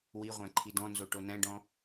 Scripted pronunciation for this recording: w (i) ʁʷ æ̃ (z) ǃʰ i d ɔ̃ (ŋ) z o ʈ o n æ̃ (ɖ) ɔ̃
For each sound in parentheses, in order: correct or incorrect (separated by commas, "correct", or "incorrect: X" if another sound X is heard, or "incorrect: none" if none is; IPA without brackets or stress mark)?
correct, incorrect: none, incorrect: n, correct